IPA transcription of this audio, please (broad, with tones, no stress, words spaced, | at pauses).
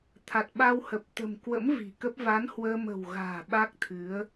t̪ʰa˨˩t̚ɓa˧whə˨˩p̚ t̪ə̤˨˩m kwə̰˧˥m vi̤˨˩kə˦˥p̚ va˨˦nhwəː˧mə̤˨˩wɣa̤ː˨˩ ɓa˦˥k̚t̪ʰɨ˨˦ə̯